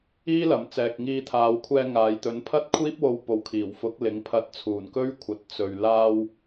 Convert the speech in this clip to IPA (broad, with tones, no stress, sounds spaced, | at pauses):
iː˥ l ɐ˨ m t͡s ɛː˨ k̚ ŋ iː˧ t̪ʰ aː˨˧ w kʷʰ ɛː˧ ŋ aː˨ j t̪ ɵ˨˥ n pʰ ɐ˥ t̚ kʷʰ iː˥ p̚ w o˧ w p o˨˥ w kʰ iː˨˩ w f ʊ˨˥ k̚ l ɪ˨˥ ŋ pʰ ɐ˧ t̚ t͡sʰ uː˨˩ n k ɵ˥ ɥ kʷʰ ɐ˨˥ t̚ t͡s ɵ˨ ɥ l aː˧ w